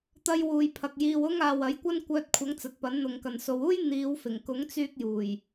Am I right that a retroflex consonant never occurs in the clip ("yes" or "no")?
yes